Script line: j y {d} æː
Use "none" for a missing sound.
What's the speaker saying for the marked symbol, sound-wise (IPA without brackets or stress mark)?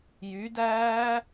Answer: d